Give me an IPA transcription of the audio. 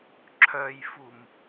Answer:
ǁʰ œ j f u m

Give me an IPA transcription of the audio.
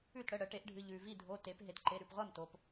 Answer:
ʉ˥˩ t ɽ ə˩˧˩ ɽ ə˩˧ ʈ e˩˧ ʔ ɖʱ ɨ˩˧˩ ʎ ʉ˩ v i˥˩ dʱ o˩˧˩ t e˩˧ p ɦ e˩ t ǃ e˩˧˩ ɾ ʉ˩˧˩ p ʁʷ a˥˩ m t o˩ p

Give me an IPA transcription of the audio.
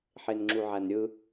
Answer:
ħ e n ŋ͡ǁ u ʕ æ n ɾʲ ɯ

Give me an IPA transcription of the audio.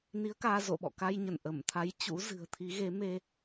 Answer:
n i˨˦ ə̯ k aː˧ z o̰˧˨ ɓ ɔ̰˧˨ k a˧ j ɲ ə˧˩ n ʔ ə˧˩ m t̪ʰ a˨˦ j t͡ɕ ṵ˧˥ z ɨ̤˨˩ ə̯ t̪ʰ i˨˦ ɣ e˨˦ m e˧

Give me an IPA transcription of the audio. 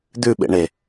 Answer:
d̪ ʉ ɓ ḛ ɳ e

